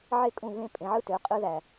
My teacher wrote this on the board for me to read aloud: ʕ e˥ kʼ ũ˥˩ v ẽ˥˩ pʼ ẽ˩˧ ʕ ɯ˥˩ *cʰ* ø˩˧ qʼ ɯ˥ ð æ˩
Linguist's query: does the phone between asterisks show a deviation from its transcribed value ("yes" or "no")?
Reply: yes